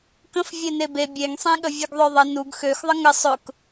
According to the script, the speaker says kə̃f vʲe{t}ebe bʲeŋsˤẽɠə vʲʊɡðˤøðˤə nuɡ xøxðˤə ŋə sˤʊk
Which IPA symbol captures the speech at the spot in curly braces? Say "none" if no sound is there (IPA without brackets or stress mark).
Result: n